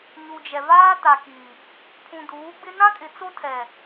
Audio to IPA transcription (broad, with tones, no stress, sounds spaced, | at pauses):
ɲ u˨ d͡ʒ ɛ˨ v aː˦ t a˨ k i˨ | pʰ ũ˨ d uː˨˦ ɡ͡b ɪ˦ n ã˦ kʼ ɪ˨ t͡s o˦ tʰ ɛ˨